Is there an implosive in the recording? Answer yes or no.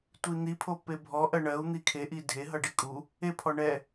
no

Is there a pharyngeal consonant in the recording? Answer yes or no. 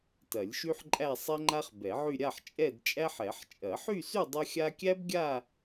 yes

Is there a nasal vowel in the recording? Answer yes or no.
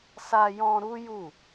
yes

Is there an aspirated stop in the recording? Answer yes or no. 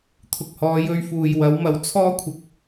yes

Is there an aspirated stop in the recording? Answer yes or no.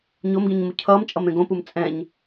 yes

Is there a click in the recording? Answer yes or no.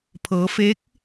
no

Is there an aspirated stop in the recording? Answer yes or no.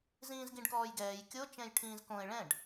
yes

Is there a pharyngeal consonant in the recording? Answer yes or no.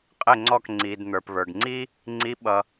no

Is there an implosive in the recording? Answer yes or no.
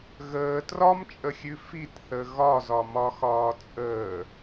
no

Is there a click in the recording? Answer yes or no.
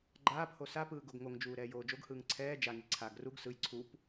yes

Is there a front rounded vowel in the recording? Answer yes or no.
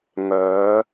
yes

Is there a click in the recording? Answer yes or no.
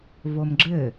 yes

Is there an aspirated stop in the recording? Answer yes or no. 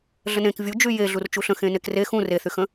no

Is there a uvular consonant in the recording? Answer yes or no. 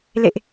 no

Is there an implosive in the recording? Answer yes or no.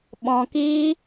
yes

